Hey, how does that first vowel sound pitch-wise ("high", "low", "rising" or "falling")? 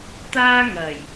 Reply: high